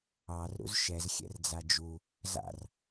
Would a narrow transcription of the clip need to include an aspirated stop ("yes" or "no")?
no